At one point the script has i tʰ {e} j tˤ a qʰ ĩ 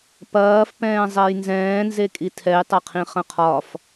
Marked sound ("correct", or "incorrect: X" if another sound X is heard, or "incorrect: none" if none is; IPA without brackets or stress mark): incorrect: ɛ